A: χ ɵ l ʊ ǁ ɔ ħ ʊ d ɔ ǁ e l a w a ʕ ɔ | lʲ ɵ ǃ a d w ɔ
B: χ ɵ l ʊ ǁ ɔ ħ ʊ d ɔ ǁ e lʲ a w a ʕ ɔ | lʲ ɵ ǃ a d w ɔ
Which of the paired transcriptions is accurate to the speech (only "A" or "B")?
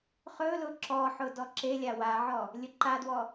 B